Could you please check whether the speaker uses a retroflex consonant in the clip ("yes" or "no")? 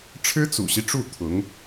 yes